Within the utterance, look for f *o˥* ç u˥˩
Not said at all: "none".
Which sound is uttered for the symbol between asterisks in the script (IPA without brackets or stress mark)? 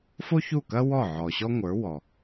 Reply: o˥